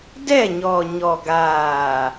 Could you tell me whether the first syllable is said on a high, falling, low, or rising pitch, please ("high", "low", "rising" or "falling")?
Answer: falling